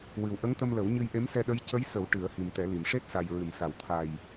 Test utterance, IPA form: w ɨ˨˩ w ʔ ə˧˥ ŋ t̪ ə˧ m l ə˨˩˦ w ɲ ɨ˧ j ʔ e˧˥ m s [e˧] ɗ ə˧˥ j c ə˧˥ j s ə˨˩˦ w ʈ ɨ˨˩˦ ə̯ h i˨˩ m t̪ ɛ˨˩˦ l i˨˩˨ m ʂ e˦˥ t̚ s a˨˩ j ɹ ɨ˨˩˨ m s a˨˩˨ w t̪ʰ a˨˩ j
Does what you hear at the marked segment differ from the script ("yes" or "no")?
yes